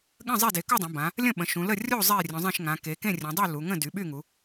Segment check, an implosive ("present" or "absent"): present